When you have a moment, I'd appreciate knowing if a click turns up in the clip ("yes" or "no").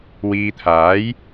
no